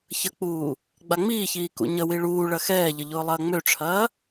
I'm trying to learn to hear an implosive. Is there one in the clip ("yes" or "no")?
no